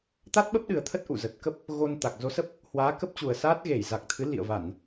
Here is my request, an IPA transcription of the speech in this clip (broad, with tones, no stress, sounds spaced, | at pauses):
t̪ a˦˥ t̚ ɓ ə˦˥ p̚ ɗ ɨ˨˩ ə̯ t̪ʰ ə˦˥ t̚ ʔ ṵ˧˨ z ə˨˩ t̚ k ə˦˥ p̚ | ɣ o˧ n t̪ a˨˩ k̚ z o˨˦ s ə˦˥ p̚ | h w aː˨˦ k ə˦˥ p̚ t͡ɕ u˨˩ ə̯ s aː˦˥ t̚ ɣ e˧˩ j z a˨˩ k̚ t̪ʰ ɨ˨˦ l ḭ˧˨ ə̯ v a˧˩˨ n